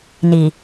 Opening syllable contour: low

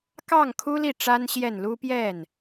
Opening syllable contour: falling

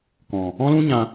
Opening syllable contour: low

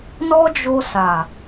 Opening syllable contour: high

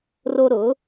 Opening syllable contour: high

